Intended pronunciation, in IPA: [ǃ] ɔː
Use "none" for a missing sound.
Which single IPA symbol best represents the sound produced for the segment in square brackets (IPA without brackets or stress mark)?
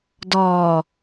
d